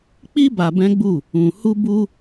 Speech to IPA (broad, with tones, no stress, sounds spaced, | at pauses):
k͡p i˦ b a˧ b ɛ̃˦ ɡ͡b u˦˨ | ũ˨ h u˧ b u˧